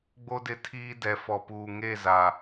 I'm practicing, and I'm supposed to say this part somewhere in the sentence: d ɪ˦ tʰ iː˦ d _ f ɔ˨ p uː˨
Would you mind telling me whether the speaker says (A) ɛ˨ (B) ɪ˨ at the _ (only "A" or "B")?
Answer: A